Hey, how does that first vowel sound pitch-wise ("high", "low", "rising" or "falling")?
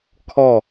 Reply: falling